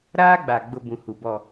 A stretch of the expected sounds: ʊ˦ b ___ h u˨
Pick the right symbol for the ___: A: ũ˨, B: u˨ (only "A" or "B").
A